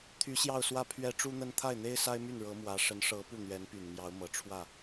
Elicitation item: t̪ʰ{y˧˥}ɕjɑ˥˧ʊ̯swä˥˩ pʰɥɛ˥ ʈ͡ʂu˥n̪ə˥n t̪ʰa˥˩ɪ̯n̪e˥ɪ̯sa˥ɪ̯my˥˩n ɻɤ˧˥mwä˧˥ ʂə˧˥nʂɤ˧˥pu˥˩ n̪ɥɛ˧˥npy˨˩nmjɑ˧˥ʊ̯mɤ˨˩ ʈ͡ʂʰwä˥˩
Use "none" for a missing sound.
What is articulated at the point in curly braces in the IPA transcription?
y˧˥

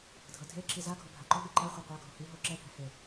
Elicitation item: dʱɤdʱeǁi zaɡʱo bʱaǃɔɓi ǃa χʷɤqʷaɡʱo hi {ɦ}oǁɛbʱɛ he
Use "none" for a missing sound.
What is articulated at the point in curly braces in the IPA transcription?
ɦ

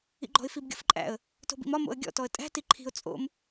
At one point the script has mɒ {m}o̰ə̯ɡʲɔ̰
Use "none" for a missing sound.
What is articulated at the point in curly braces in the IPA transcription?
m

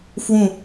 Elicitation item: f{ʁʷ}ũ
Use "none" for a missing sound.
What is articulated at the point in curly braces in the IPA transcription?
w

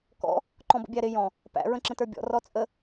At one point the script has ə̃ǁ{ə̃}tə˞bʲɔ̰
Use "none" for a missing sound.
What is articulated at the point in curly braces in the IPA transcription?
ə̃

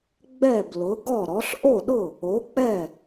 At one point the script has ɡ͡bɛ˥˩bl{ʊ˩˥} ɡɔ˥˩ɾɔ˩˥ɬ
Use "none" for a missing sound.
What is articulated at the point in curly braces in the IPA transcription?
ʊ˩˥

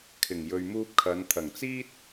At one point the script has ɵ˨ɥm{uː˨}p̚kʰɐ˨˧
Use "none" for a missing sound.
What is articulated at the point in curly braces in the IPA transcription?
uː˧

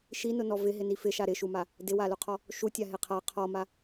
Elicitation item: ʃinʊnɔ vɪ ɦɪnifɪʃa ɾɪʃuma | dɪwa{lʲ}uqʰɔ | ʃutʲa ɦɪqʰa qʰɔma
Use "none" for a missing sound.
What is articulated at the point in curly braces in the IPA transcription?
l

